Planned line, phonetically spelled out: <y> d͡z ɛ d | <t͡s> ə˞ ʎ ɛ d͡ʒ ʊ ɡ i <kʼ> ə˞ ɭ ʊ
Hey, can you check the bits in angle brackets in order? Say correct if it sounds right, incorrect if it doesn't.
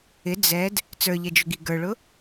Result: incorrect: ɪ, correct, incorrect: ɡ

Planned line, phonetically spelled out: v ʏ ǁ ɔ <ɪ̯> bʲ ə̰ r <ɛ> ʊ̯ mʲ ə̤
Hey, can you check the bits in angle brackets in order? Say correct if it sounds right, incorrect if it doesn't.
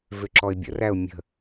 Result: correct, incorrect: æ

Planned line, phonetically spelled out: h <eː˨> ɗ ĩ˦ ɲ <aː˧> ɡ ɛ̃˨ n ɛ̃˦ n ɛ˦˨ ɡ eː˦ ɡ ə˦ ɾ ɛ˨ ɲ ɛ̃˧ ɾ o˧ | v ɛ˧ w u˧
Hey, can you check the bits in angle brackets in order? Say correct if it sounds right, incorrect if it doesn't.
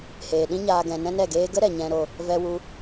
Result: correct, correct

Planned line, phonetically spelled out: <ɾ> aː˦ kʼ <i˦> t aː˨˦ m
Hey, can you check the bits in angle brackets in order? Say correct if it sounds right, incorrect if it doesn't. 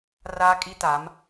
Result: incorrect: r, correct

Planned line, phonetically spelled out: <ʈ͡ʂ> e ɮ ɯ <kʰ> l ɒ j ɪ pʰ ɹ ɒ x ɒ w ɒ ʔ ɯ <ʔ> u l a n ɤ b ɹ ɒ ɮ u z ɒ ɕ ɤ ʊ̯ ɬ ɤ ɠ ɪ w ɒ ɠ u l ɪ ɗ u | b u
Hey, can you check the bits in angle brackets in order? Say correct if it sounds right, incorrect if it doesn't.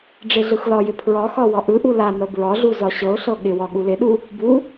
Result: incorrect: ɖ͡ʐ, incorrect: x, correct

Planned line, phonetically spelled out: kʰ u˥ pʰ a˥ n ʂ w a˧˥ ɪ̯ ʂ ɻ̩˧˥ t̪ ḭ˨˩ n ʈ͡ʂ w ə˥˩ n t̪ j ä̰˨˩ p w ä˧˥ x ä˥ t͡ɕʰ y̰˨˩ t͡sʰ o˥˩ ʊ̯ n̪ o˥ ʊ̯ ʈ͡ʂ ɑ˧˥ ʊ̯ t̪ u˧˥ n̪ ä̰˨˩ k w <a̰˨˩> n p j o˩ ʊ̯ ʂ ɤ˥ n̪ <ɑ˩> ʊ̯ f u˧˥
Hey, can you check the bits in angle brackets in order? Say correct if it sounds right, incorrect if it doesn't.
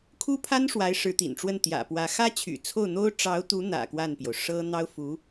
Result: incorrect: a˥˩, incorrect: ɑ˥

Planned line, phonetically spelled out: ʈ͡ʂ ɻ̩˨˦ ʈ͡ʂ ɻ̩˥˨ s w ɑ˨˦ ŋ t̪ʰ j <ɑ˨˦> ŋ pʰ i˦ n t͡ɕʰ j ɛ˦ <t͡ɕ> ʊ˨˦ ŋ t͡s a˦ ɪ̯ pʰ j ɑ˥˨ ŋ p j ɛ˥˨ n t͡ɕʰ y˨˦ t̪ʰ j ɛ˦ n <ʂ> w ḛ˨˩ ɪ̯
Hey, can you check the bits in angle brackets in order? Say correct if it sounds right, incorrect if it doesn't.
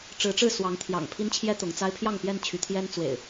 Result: incorrect: ɑ̰˨˩, incorrect: t̪, incorrect: t͡s

